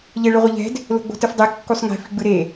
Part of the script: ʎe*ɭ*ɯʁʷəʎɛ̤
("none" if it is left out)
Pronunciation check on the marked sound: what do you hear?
ɭ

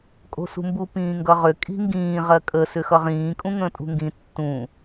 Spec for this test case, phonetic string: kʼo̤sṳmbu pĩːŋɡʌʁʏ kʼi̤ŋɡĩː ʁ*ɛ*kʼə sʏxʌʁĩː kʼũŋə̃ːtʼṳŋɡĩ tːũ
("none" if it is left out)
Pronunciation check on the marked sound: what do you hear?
ɜ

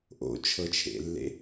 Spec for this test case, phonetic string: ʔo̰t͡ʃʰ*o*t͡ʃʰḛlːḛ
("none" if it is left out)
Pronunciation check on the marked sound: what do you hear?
ɤ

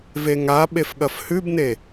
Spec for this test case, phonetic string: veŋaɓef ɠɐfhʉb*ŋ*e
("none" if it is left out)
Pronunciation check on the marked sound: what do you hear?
n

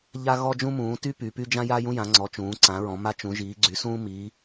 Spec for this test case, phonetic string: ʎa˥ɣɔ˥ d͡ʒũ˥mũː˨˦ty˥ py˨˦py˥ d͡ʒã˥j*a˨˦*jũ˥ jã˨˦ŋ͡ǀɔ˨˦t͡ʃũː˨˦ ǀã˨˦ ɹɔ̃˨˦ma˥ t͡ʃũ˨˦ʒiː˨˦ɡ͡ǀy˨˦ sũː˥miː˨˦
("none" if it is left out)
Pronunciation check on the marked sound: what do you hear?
a˥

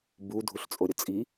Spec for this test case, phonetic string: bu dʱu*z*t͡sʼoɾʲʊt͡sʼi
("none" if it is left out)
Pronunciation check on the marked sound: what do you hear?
ɬ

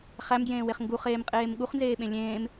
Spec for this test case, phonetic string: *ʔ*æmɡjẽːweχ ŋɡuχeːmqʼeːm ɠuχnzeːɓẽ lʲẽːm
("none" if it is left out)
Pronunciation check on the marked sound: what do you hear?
χ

